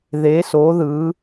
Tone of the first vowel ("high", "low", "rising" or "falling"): rising